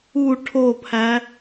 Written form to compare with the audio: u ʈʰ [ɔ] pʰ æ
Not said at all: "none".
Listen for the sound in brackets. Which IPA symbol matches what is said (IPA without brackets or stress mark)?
o